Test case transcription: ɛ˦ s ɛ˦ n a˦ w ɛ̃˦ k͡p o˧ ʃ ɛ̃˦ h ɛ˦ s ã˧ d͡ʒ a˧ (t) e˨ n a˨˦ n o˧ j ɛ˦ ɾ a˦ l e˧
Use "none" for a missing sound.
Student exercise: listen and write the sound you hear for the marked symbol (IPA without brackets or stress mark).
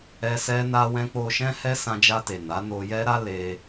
t